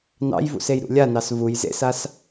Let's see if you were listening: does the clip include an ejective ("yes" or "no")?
no